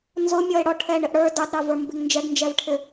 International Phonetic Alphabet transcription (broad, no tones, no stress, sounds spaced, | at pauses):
n z ʊ mʲ ɔ e̯ ɽ ɔ ʈʰ ɛ ɳ ɪ ʔ ɽ ə˞ d ɑ d ɾ ɑ v ə˞ m b ɪ ŋ n d͡ʒ ɛ ɡ n d͡ʒ ɛ v ʈʰ ɪ